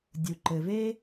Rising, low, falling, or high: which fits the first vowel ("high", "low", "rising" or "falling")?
low